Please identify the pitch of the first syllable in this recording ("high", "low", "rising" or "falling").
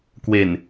low